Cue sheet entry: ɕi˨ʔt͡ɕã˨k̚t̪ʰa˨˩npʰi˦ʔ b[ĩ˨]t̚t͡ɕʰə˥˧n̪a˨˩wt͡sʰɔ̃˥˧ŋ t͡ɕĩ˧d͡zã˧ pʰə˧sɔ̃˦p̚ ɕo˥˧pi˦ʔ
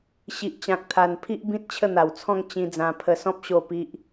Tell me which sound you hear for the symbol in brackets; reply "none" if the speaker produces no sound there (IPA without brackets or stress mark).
ĩ˦